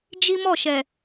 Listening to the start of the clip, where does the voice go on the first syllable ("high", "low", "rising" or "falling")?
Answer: high